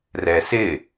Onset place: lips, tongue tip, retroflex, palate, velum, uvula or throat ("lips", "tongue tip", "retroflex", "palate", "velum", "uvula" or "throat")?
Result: tongue tip